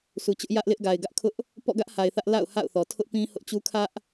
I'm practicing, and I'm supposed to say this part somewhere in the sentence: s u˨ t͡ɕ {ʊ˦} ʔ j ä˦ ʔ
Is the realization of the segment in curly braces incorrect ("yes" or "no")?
no